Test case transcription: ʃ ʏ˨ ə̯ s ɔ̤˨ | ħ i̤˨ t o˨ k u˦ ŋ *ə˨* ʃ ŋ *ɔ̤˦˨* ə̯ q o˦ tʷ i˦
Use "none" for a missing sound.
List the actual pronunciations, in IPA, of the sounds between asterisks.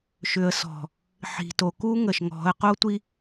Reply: ə˨, ɔ̤˨˦

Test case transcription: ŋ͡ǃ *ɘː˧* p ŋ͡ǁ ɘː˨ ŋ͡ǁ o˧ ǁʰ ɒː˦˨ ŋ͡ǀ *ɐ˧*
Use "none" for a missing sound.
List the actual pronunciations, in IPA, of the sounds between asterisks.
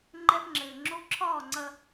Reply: ɛː˧, ɐ˧

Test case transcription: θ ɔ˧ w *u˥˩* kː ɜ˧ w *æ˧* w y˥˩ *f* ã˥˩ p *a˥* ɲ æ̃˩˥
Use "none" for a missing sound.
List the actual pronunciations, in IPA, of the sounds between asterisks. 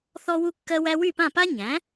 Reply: u˧, æ˧, p, a˥

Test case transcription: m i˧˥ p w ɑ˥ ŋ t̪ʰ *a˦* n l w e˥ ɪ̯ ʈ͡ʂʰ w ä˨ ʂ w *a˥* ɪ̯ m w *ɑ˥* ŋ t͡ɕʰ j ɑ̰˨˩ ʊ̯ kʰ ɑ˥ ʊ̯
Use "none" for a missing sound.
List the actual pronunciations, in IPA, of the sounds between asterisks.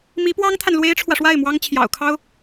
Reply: a˨, a˥˩, ɑ˥

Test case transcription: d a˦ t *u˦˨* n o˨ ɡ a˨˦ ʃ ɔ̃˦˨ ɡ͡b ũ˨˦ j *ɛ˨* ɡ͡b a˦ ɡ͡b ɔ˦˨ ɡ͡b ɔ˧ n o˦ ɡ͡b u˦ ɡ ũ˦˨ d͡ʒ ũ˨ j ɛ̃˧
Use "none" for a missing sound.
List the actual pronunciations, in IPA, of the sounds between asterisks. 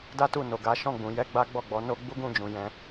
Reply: u˦˨, ɛ˦

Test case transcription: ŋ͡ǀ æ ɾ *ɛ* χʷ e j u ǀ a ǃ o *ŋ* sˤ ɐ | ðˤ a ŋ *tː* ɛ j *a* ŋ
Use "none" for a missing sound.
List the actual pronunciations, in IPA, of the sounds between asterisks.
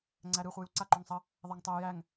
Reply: ɨ, ŋ, tˤ, æ

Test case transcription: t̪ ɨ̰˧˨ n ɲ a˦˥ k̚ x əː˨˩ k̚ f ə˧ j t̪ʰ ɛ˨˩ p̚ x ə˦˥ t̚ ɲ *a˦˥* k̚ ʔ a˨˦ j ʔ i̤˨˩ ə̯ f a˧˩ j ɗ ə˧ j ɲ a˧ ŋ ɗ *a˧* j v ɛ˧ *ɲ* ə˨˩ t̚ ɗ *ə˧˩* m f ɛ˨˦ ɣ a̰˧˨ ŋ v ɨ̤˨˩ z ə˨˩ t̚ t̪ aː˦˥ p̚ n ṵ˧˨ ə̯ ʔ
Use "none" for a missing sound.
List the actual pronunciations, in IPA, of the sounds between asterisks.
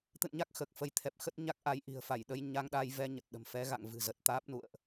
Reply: a˦˥, a˧, ɲ, ə̤˨˩

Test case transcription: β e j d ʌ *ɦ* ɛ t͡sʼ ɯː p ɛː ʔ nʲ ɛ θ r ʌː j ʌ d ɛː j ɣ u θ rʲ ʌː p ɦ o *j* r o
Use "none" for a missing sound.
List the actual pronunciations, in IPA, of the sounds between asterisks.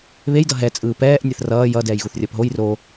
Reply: ɦ, j

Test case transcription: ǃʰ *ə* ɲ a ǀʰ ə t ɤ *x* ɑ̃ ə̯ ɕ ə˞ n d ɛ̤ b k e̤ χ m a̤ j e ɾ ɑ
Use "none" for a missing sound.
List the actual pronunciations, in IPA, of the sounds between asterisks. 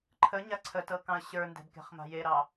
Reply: ə, k

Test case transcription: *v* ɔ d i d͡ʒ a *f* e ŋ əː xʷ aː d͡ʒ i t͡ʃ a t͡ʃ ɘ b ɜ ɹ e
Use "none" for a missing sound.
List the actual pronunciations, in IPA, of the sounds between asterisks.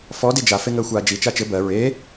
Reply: f, f

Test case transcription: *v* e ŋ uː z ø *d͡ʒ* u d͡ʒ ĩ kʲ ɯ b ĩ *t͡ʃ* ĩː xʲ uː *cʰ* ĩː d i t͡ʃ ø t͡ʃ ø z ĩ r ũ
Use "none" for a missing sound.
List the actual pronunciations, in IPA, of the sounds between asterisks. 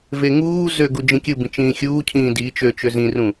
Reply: v, ɡ, t͡ʃ, cʰ

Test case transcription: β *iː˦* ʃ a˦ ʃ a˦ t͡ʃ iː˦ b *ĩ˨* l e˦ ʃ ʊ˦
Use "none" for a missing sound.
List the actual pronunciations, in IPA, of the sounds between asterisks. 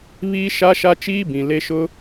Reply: iː˦, ĩ˨

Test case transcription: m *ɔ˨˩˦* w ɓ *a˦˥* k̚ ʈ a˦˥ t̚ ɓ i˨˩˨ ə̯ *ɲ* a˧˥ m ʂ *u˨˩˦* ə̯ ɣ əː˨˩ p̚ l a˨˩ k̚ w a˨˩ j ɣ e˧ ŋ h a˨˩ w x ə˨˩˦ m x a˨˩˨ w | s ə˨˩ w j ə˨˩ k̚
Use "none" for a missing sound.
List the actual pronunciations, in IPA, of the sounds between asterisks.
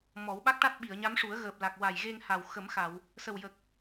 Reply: ɔ˨˩˦, a˦˥, ɲ, u˨˩˦

